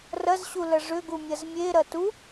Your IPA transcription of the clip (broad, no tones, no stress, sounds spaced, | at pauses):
r ɐ z ɕ u l ɐ ʐ ʏ ɡ u mʲ ɐ z mʲ e ɾ ɐ t u